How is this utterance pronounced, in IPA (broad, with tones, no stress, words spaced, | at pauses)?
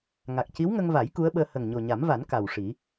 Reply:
ŋa˨˩k̚ci˧˥wŋə˧ŋva˨˩˦j ku˧˥ə̯ɓəː˧ hə˨˩ŋ ɲo˨˩ɲa˨˩˦mva˨˩˦n ka˨˩wʂi˨˩˦